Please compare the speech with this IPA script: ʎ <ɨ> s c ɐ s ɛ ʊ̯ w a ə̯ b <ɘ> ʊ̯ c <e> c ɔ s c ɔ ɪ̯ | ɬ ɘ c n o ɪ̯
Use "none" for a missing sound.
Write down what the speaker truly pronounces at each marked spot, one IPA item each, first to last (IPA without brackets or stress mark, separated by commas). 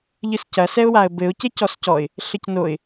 ɨ, ɘ, e